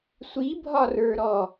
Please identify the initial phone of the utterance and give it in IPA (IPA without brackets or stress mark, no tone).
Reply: sʷ